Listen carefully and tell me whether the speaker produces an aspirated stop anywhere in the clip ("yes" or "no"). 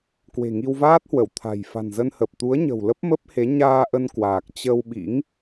yes